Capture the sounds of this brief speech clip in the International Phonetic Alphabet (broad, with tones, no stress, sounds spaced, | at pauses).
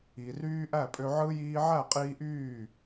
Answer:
i˨ r yː˦ ʔ æ˦˨ pʼ ø˧ ʕ ɯ˦ j iː˧ ʕ æ˦˨ qʼ iː˧ ʔ yː˦˨